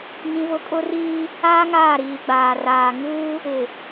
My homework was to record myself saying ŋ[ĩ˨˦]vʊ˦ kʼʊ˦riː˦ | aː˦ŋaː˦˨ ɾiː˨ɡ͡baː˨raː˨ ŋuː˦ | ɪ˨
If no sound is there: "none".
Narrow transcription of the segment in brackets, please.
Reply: ĩ˦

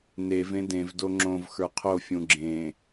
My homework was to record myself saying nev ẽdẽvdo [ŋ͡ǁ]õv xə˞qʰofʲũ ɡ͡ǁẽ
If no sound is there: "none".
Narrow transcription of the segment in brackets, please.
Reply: ŋ͡ǁ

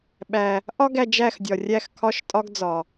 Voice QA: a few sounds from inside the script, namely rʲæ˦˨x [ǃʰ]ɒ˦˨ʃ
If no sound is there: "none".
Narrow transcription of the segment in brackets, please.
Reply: kʰ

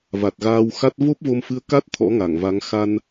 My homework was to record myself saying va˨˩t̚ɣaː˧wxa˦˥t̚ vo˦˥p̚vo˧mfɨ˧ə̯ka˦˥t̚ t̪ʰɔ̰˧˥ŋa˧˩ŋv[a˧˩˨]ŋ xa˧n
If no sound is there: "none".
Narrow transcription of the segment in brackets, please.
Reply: a˨˦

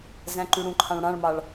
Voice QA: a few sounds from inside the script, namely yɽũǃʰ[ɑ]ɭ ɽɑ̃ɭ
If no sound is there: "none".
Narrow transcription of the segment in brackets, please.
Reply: ɑ̃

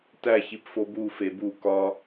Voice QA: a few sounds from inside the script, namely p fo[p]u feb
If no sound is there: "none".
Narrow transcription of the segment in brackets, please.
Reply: b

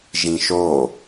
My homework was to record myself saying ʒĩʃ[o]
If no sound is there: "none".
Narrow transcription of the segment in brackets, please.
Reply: o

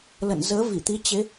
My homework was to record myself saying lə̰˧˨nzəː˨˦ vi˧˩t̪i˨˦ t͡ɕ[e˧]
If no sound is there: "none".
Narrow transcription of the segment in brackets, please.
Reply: e˨˦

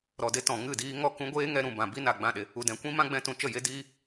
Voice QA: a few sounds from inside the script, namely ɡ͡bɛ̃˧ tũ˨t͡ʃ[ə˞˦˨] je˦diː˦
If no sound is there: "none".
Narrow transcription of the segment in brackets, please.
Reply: ə˦˨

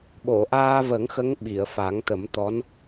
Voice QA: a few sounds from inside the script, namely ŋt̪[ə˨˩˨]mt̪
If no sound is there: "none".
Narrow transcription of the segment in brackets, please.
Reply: ə˨˩˦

